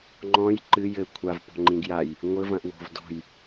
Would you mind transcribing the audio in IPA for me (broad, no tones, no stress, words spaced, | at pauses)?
ŋ͡ǃɔ̃j ǃɨ jɘ kʷʰav pɔ̤ŋ͡ǃĩɡjaj | ŋʷɘvɐ̃ʔ wo̤vdɔ̤j